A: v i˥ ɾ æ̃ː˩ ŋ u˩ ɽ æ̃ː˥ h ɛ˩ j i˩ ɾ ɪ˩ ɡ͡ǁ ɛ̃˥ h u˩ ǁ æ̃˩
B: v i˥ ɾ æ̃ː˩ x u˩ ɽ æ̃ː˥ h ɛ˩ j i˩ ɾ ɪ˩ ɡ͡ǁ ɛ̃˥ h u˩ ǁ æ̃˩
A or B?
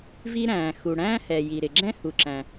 B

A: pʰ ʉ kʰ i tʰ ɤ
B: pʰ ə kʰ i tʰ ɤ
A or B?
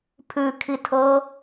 A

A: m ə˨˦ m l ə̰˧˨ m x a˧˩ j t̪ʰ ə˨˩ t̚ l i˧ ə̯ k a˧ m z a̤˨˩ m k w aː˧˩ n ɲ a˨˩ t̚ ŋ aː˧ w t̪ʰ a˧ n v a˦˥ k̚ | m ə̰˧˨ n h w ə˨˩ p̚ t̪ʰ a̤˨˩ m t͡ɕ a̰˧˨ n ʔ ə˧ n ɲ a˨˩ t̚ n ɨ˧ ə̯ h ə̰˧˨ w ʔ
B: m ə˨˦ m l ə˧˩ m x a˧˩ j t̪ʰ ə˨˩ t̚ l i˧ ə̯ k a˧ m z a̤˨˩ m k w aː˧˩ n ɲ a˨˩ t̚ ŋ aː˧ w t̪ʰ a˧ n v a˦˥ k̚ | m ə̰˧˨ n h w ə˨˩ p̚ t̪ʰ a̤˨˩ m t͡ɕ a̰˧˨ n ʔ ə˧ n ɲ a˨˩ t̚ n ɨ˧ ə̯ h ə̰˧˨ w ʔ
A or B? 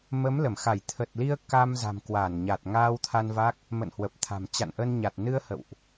B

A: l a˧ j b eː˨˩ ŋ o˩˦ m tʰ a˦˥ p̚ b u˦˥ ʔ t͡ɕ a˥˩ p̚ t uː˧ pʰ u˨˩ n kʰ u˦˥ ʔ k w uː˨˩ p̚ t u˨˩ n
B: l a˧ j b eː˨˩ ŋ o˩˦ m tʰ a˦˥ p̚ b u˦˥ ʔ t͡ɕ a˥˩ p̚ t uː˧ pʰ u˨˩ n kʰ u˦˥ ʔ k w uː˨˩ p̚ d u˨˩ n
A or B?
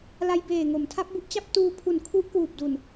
B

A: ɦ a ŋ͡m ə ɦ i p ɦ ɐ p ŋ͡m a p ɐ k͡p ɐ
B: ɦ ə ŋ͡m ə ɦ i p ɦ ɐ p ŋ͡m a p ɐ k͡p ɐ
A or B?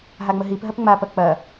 A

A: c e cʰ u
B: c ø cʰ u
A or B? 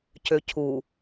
B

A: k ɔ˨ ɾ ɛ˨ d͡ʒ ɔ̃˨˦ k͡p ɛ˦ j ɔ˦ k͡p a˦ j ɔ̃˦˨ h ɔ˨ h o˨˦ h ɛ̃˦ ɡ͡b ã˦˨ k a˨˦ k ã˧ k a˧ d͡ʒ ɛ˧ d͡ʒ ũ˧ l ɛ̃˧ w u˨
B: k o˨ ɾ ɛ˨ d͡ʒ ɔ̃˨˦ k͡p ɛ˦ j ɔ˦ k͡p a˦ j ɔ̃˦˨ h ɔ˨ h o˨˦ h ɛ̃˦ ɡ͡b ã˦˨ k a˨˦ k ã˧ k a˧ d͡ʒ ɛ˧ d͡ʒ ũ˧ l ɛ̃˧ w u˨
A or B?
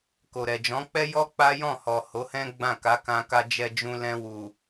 B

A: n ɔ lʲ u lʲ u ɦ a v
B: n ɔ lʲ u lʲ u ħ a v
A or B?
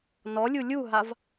A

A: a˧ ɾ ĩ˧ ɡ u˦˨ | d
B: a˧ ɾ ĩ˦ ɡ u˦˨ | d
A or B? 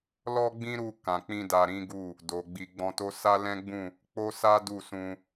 B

